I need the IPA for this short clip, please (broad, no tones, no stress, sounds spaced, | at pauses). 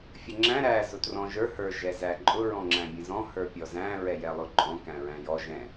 fʲ ə ŋ͡ǁ æ̃ ɾ æ z ʊ t r ɔ̃ ʒ ə˞ h ə˞ ʒ ɛ z æ ǃʼ ʊ ɹ ɔ̃ ŋ͡ǁ æ̃ bʲ ə̃ z ɔ̃ h ə˞ pʲ ɔ z æ̃ ɹ ɛ j ɛ lˠ ʊ ǃʼ ɔ̃ k æ̃ ɹ æ̃ j ɔ ʒ ɛ̃